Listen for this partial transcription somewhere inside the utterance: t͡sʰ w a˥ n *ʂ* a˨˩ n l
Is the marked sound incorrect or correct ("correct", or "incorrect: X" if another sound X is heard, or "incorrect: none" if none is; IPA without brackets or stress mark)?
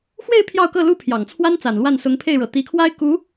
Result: incorrect: t͡s